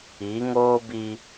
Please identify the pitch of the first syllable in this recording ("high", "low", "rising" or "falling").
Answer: rising